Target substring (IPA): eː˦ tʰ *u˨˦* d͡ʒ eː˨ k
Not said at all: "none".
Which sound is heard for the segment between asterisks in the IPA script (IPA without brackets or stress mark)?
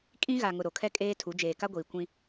u˨˦